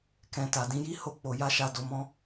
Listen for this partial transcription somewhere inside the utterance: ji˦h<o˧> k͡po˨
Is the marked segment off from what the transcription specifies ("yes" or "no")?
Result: no